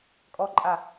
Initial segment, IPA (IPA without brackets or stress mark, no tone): kʼ